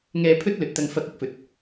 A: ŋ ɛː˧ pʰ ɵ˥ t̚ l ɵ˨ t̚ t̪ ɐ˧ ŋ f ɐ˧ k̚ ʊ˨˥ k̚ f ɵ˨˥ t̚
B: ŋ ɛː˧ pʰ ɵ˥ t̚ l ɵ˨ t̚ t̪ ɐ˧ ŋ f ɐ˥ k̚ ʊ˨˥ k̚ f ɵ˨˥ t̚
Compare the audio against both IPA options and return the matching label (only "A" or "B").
A